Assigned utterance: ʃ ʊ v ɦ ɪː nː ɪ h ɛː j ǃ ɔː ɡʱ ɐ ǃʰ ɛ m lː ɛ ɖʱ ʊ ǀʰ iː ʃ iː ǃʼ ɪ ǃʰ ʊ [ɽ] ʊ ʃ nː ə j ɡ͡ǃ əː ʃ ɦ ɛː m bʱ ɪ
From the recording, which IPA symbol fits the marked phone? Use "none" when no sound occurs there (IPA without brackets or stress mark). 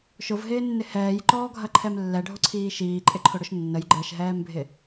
ɽ